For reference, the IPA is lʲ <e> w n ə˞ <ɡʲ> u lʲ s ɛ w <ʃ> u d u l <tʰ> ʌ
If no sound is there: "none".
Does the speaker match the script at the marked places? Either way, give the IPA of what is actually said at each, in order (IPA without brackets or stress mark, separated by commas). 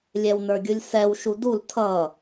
ɛ, ɡʲ, ʃ, tʰ